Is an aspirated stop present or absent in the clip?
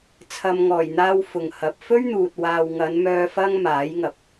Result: present